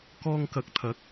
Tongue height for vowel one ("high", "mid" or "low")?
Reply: mid